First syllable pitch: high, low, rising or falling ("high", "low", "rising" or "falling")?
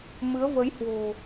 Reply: rising